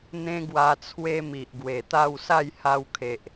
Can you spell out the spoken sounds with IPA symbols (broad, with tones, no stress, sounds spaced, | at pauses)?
n̪ ẽ˦ ɡ w a˧ t͡sʰ w e˦ m i˨ ʔ ɡ w e˨˩ t̪ a˥˧ w s a˥˧ j h a˧ w kʰ e˨ ʔ